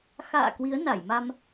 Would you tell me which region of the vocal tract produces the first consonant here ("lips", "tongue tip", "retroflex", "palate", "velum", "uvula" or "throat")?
velum